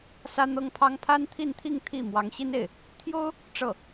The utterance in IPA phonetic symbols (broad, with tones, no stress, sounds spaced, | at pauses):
s ä˥ n̪ ɤ˥ ŋ pʰ ɑ˥ ŋ pʰ a˥ n t̪ʰ i˥˧ n t̪ʰ i˥˧ ŋ t̪ʰ i˥˩ m w ɑ˧˥ ŋ ɕ i˥ n e˥˩ ɪ̯ | t̪ʰ j o˥ ʊ̯ | ʈ͡ʂ ɤ˥˩